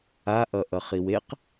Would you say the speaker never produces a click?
yes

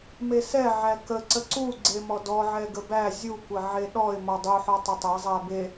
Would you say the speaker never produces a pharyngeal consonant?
no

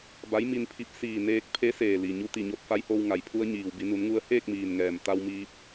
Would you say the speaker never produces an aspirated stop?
no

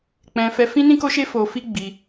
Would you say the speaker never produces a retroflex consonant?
yes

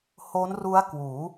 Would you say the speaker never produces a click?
yes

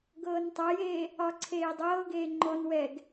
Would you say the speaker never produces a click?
no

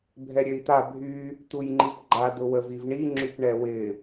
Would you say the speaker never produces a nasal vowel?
yes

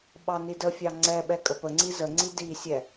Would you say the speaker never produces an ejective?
no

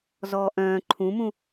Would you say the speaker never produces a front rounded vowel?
no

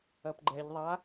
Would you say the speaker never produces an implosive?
yes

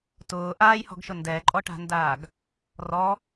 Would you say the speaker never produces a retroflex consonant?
no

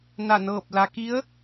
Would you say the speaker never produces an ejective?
yes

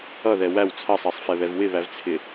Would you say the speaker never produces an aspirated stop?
no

